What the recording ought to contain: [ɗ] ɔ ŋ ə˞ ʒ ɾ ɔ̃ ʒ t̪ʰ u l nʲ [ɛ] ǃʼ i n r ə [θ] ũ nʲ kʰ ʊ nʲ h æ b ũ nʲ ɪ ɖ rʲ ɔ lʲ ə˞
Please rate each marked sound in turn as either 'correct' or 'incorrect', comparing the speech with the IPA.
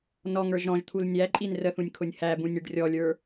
incorrect, incorrect, correct

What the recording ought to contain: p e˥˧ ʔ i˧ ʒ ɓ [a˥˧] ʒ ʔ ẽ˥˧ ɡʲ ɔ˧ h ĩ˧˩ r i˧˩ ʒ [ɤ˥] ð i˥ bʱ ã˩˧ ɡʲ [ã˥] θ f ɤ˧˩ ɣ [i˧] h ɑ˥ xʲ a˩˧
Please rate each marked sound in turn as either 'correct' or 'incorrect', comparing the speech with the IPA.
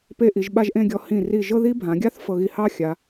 correct, correct, incorrect, correct

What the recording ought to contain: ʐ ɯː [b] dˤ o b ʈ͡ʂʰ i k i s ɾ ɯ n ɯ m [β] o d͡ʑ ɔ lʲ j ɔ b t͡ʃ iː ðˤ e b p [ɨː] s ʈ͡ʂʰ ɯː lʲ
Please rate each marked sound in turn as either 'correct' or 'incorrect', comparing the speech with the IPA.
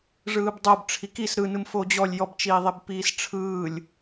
correct, incorrect, incorrect

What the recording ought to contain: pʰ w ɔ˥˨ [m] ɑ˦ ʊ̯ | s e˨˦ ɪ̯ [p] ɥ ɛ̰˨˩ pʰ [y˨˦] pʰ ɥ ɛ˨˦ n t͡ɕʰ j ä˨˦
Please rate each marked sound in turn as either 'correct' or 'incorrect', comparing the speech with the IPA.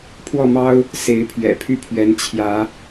correct, incorrect, incorrect

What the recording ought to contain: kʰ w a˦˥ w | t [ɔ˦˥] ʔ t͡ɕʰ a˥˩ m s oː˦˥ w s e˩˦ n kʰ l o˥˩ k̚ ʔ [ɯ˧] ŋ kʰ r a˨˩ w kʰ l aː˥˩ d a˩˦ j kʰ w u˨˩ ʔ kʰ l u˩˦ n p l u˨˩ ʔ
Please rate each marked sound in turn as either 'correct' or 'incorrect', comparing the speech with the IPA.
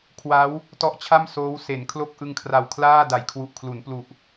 correct, correct

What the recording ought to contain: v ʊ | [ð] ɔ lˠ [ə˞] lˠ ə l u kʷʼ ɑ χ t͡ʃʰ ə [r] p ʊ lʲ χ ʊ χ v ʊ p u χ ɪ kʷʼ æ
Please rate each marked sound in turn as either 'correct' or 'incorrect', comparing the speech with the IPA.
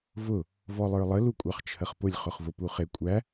incorrect, correct, incorrect

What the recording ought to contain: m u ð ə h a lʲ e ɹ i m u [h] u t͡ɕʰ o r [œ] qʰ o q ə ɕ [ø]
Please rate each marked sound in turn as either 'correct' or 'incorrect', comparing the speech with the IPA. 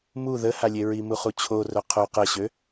incorrect, correct, correct

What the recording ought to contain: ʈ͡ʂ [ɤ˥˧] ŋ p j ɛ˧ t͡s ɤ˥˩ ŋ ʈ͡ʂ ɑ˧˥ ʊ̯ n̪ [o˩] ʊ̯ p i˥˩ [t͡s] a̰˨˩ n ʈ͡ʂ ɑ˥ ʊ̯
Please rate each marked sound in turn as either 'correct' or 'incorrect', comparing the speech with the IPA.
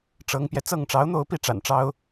incorrect, incorrect, incorrect

